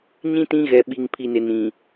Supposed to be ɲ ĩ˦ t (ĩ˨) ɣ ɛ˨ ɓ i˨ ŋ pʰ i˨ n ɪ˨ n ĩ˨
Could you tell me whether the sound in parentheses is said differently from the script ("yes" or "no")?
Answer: yes